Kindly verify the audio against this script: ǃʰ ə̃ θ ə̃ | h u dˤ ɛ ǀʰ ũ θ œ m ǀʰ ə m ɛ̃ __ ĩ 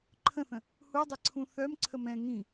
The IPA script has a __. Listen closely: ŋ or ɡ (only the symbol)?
ŋ